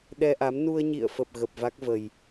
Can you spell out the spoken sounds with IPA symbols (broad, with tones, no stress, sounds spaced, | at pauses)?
ɗ ɛ˧ ʔ a˨˦ m n u˧ ə̯ ɲ ḭ˧˨ ə̯ f ə˨˩ p̚ ɣ ə˨˩ p̚ v a˦˥ k̚ v ə˨˩ j